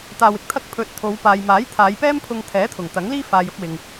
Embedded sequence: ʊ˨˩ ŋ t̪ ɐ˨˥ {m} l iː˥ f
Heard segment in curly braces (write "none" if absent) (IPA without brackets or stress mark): ŋ